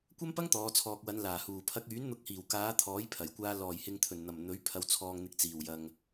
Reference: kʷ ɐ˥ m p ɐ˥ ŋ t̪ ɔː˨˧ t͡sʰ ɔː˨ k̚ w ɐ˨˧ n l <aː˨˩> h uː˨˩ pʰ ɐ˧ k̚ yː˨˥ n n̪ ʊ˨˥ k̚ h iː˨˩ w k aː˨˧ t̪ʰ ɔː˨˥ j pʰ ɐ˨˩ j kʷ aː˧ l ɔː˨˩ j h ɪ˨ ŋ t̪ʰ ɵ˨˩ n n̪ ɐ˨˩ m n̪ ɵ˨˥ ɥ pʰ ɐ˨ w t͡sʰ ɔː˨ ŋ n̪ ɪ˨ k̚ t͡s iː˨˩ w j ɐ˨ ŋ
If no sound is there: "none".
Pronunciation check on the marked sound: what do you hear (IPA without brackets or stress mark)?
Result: aː˨˩